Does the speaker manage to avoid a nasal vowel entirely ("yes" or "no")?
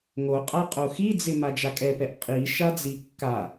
yes